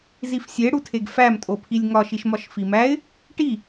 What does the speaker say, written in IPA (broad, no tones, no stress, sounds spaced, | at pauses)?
z i f sʲ e ɽ u tʰ e ɡ f æ m tʼ o pʰ i lʲ ŋ ɒ ʃ i ʃ m ɒ ʃ f i m æ ɪ̯ | ʈ i